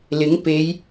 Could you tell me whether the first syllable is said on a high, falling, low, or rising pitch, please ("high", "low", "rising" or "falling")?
rising